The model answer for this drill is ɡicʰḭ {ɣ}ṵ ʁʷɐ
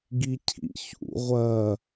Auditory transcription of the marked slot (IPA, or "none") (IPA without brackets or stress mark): ç